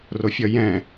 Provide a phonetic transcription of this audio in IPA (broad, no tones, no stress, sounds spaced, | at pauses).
r o fʲ ʌ j ɛ̃